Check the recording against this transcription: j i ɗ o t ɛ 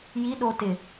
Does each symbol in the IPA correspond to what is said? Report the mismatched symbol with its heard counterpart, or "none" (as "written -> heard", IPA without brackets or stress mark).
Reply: ɛ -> ɪ